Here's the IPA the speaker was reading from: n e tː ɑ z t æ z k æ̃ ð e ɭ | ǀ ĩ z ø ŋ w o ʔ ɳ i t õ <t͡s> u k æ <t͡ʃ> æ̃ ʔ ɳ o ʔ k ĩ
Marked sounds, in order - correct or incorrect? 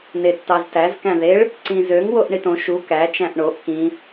incorrect: ʃ, correct

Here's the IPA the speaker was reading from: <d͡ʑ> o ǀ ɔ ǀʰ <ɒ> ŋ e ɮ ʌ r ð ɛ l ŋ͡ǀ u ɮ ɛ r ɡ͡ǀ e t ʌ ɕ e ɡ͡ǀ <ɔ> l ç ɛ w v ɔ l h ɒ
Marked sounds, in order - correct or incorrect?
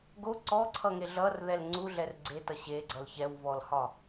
incorrect: ɡ, incorrect: ʌ, incorrect: ʌ

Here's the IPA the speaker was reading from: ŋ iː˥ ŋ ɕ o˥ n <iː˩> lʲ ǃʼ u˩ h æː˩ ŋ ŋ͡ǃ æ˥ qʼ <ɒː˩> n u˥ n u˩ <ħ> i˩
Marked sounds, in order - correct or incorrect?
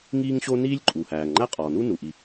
incorrect: iː˥, correct, incorrect: ʔ

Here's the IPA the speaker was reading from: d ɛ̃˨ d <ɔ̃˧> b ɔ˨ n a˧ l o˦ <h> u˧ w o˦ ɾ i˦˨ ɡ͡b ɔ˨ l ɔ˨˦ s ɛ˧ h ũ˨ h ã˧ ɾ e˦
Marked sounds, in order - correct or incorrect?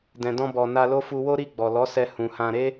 correct, incorrect: f

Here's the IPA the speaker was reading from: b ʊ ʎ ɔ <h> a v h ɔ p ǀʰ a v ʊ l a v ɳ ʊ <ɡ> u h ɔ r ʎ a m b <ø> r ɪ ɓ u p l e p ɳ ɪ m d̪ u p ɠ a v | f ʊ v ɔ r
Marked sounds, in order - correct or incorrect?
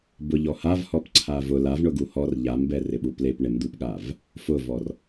correct, correct, incorrect: ɛ

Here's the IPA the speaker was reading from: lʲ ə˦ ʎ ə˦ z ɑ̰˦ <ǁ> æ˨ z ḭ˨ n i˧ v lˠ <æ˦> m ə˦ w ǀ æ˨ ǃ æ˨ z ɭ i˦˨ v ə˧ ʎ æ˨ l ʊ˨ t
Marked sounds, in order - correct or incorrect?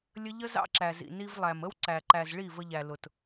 correct, incorrect: æ˨

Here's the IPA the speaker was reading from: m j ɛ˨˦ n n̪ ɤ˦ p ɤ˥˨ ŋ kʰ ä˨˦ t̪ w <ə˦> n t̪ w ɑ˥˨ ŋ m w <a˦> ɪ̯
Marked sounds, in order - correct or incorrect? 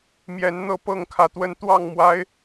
correct, correct

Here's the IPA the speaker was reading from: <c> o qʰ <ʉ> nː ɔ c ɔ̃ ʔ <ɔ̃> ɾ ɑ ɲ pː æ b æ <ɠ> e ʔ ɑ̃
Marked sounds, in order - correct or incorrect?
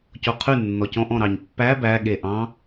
correct, correct, correct, correct

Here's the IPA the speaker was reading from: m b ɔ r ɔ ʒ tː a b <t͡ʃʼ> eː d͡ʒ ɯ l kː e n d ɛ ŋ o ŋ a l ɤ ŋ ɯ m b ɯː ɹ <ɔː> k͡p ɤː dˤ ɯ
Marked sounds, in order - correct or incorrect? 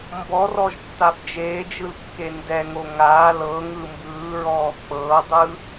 incorrect: d͡ʒ, correct

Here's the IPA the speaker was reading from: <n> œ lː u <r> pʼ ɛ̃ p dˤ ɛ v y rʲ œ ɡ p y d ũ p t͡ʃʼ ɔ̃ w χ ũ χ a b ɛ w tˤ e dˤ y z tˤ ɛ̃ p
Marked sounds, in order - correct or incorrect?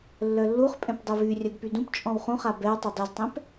incorrect: lː, incorrect: χ

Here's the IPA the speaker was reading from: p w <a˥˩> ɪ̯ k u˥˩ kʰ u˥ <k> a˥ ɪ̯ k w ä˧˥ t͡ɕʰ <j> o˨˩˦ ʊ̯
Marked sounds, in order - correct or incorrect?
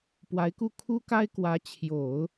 incorrect: a˧˥, correct, correct

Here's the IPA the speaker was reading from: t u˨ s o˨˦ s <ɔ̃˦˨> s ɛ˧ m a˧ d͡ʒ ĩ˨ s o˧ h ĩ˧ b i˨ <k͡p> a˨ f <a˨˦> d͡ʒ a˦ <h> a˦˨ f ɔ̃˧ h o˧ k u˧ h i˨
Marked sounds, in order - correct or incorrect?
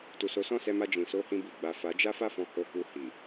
correct, incorrect: ɡ͡b, correct, incorrect: f

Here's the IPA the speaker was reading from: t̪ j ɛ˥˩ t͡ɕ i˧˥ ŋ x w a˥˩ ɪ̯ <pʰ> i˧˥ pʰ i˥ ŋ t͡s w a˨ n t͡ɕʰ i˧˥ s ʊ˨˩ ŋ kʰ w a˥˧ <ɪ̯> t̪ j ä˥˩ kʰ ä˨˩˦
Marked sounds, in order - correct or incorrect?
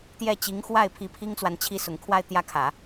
correct, correct

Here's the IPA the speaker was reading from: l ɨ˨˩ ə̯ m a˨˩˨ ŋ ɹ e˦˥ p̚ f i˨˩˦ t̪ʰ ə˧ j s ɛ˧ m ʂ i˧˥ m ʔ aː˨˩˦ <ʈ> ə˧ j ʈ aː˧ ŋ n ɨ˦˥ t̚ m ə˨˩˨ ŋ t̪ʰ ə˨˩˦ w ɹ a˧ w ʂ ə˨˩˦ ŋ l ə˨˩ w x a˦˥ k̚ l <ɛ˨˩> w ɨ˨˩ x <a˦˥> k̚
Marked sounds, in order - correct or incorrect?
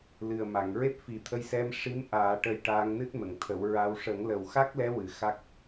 correct, incorrect: ɛ˧˥, correct

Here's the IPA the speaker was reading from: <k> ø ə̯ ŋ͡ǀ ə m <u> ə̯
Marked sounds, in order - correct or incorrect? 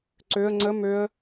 incorrect: ǀ, incorrect: ø

